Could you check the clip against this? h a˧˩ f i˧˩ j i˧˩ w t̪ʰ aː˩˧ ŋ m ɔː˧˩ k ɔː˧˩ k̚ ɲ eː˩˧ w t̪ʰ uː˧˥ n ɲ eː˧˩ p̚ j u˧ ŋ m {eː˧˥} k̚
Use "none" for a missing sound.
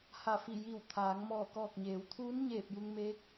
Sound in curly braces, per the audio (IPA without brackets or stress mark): eː˧˥